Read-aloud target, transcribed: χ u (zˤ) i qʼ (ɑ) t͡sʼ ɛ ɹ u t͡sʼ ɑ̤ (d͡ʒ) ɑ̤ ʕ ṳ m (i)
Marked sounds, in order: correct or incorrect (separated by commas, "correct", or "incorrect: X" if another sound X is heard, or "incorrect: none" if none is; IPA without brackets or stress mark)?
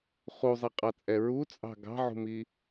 correct, correct, incorrect: ɡ, correct